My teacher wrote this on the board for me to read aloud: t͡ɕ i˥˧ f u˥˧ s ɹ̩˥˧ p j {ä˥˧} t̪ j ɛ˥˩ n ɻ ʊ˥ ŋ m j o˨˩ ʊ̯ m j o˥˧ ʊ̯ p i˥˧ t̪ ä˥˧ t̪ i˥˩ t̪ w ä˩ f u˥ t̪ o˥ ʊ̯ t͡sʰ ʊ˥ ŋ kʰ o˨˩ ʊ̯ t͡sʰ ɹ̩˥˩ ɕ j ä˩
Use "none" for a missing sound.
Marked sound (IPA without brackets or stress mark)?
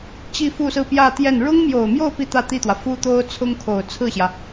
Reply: ä˥˧